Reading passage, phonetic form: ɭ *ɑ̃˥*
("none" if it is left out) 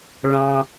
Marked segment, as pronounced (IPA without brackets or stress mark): ɑ̃˩